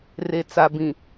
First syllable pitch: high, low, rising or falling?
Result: low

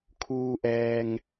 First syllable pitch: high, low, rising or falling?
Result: low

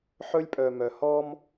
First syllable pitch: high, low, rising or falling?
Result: high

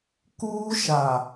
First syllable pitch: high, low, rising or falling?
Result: high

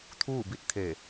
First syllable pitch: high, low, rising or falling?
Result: falling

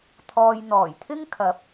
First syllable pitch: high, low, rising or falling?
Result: low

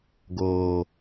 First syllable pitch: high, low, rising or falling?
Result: low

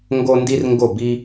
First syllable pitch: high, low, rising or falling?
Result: high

